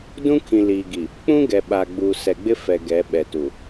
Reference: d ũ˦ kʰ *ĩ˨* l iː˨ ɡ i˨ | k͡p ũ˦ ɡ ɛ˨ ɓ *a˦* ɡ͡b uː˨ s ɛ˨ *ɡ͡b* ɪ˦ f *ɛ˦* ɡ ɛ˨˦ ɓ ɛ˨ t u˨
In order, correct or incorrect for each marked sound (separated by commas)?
correct, incorrect, correct, incorrect